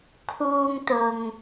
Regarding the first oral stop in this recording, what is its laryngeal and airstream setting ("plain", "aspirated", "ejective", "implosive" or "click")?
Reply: aspirated